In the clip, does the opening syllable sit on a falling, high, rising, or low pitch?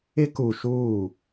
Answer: high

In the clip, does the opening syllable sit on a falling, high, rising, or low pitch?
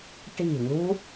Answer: falling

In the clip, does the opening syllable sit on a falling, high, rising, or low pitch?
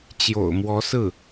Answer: low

